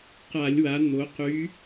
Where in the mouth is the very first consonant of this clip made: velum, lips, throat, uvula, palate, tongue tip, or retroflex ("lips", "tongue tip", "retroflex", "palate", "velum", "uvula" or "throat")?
uvula